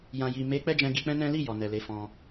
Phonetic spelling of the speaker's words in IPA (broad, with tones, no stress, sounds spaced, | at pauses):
j ã˨ j i˨ m e˨˦ k͡p ɛ˦ d͡ʒ ɛ̃˧ ɡ i˧ k͡p ɛ̃˦ n ɛ̃˦ l i˦˨ j ɔ˨ n ɛ˨ l e˨˦ f ɔ̃˧